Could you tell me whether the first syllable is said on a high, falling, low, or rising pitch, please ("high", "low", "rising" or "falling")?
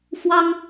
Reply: high